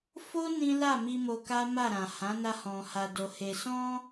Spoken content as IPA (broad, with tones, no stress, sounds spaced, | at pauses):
f o˦ n ĩ˦ l a˦˨ m i˧ m o˧ k a˦ m a˦˨ ɾ ã˨ h ã˨˦ n a˧ h ɔ̃˨ h a˨ d o˨ h e˨ s ɔ̃˧